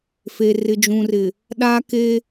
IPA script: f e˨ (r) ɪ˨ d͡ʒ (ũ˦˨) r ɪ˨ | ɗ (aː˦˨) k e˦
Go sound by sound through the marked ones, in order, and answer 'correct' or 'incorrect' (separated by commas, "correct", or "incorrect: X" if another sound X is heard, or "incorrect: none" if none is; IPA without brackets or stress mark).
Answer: correct, incorrect: ũ˨, incorrect: aː˦